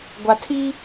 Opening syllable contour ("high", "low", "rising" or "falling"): low